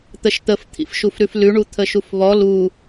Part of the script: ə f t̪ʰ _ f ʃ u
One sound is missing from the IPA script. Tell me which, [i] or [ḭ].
ḭ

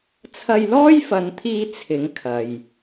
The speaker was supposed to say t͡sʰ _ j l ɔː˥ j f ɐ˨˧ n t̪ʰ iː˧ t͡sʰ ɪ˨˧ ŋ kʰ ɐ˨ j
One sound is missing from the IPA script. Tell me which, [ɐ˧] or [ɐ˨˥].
ɐ˧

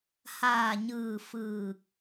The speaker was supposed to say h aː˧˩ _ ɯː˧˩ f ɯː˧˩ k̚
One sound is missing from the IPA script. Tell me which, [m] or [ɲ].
ɲ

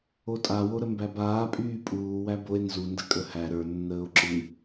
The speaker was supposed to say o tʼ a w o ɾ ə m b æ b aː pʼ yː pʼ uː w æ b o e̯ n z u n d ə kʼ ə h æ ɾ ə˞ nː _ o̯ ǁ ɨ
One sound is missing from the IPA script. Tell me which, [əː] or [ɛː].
əː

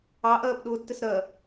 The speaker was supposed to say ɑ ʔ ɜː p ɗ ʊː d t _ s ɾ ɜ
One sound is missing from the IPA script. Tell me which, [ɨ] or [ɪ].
ɪ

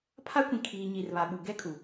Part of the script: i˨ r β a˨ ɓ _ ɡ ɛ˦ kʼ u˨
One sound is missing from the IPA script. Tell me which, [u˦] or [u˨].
u˨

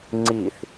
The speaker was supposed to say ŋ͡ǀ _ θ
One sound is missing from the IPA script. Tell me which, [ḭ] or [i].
i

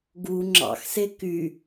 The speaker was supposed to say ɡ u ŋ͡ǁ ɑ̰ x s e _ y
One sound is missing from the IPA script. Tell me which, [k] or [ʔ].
k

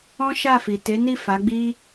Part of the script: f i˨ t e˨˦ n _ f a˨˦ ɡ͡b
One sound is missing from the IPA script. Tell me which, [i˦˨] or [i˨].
i˦˨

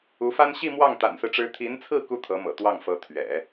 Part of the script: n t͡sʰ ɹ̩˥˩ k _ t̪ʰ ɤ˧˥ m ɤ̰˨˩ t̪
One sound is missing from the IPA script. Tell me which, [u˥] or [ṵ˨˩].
u˥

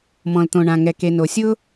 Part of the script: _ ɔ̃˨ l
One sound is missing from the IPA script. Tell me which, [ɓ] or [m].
m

